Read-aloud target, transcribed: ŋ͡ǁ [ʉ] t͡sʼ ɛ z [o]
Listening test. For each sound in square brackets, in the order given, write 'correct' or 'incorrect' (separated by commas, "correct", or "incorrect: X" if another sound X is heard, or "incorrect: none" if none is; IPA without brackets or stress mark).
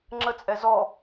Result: incorrect: ə, incorrect: ɔ